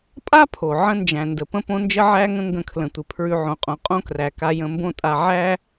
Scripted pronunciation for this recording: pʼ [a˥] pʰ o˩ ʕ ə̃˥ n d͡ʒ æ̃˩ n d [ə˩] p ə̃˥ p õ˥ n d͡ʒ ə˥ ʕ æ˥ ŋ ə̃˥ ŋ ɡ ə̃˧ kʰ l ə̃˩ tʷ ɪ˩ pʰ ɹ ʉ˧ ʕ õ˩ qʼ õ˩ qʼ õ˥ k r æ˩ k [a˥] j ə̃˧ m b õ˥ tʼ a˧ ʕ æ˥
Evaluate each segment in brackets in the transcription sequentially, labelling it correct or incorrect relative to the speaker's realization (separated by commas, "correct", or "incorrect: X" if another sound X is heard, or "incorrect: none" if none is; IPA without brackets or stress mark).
correct, correct, incorrect: a˧